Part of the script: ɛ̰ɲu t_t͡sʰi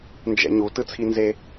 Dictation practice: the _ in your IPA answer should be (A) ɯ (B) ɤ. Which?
A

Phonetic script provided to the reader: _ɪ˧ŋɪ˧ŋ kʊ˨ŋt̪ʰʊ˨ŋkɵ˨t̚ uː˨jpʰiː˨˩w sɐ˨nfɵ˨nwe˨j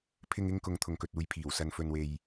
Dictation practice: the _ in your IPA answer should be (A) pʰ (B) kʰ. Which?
A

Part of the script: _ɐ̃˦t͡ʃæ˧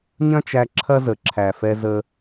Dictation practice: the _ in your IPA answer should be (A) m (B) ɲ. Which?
B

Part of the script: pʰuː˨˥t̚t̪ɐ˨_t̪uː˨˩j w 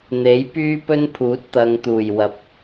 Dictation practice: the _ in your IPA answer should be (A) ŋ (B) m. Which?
A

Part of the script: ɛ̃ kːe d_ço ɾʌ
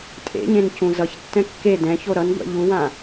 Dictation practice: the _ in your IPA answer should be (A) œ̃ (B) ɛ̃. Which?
B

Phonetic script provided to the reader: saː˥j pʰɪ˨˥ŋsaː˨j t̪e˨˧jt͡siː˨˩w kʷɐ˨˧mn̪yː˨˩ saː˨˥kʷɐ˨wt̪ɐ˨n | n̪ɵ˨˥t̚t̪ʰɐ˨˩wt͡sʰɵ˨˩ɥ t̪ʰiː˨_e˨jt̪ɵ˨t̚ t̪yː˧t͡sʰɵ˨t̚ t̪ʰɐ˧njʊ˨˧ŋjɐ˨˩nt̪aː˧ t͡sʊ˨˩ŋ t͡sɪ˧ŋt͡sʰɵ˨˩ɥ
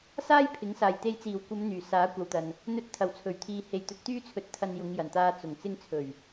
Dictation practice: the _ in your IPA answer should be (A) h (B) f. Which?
A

